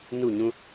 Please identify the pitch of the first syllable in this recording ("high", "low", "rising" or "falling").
falling